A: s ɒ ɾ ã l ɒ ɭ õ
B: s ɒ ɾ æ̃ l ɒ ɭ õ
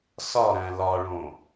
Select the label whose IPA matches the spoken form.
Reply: B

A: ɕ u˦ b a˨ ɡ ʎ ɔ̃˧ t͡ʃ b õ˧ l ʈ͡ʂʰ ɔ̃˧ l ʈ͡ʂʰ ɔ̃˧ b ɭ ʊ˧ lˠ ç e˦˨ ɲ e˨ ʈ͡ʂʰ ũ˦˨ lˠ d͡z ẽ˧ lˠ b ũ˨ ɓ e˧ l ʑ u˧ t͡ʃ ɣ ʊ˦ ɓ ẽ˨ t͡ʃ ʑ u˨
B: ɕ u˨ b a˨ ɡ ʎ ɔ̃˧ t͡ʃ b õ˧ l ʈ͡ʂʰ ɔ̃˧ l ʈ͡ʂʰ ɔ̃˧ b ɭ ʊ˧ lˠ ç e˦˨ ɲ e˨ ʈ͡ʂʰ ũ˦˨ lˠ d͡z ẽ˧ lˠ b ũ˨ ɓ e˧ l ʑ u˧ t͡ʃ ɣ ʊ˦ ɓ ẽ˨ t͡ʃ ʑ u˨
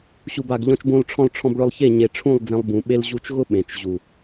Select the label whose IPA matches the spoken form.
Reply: B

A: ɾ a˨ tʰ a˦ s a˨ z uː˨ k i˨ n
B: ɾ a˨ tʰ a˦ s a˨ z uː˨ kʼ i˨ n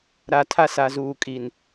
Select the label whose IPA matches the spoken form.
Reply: B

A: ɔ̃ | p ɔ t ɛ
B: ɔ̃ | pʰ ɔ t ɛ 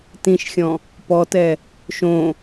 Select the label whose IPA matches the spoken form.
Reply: A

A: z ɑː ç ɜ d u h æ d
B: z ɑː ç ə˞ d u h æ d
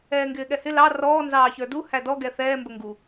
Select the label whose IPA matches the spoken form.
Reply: B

